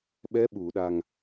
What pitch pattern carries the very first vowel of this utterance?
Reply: rising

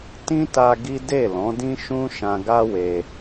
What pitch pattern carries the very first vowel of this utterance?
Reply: high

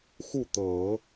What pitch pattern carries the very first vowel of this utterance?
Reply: falling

